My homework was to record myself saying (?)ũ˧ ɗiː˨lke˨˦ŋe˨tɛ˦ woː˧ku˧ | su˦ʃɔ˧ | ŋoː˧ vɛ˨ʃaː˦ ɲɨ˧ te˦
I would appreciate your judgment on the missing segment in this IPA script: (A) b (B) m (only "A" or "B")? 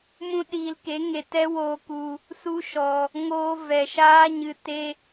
B